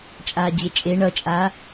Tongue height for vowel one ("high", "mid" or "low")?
low